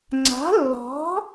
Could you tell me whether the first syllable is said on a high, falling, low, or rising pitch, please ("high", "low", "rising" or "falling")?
rising